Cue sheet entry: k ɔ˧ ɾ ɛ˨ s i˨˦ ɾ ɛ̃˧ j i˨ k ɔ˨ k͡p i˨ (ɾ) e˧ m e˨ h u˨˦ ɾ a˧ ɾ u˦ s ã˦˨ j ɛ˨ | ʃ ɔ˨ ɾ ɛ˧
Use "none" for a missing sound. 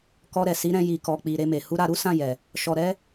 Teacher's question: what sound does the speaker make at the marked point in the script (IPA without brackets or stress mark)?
ɾ